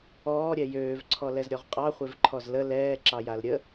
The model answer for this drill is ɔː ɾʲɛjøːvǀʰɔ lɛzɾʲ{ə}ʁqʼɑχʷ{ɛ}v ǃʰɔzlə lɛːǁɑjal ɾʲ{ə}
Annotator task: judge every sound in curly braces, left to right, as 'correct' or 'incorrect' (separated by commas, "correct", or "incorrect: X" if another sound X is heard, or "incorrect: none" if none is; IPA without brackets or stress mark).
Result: incorrect: ɔ, incorrect: e, correct